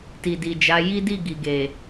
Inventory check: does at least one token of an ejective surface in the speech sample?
no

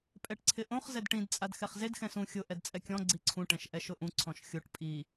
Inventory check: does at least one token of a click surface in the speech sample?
yes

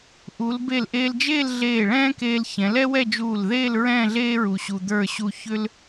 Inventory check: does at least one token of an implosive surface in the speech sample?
no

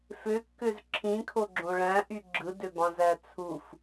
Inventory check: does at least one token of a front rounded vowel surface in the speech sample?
yes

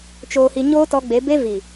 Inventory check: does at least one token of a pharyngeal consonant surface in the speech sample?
no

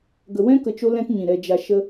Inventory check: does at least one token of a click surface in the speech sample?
no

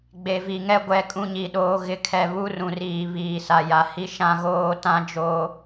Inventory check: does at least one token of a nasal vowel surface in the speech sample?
yes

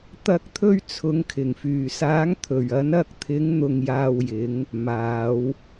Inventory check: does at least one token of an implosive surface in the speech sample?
no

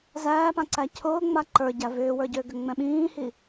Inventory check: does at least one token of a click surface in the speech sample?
yes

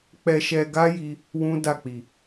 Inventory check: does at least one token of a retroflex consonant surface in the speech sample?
no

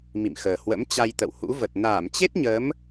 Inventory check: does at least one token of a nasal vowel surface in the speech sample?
no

